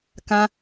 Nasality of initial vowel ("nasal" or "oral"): nasal